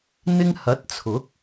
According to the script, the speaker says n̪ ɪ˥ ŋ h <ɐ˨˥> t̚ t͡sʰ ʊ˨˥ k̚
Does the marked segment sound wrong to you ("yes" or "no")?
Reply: no